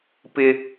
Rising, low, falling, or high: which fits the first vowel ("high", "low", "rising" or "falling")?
high